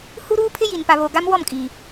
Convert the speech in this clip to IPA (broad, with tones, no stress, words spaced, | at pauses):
hu˦ɾuː˦pʰɪ˦ji˨n pa˨βo˨ ɡa˦mwɔ˦˨mkʼiː˨